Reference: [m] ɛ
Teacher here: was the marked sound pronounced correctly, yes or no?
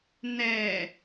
no